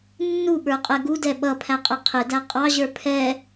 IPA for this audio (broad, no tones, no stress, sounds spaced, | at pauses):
nː u ɓ ə˞ qʼ ɛ ɡ u d ɛ ɓ ʌ pʰ æ qʼ ɛ qʰ ɪ d æ qʼ ɑ ʑ ə˞ pʰ ɛ